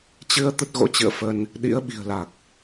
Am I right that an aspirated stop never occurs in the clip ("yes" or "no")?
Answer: yes